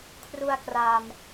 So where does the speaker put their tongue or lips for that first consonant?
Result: velum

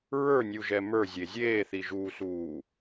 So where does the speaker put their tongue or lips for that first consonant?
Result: tongue tip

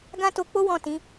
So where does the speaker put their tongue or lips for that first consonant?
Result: velum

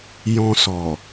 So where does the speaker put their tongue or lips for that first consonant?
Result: palate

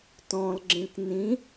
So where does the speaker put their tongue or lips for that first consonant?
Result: tongue tip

